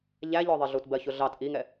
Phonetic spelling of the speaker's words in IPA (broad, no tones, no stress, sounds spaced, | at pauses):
ʎ æ ʎ ɔ ðˤ ɪ ɮ u t b ɜ ç ʊ ɮ ɑ t ʔ i ŋ ɛ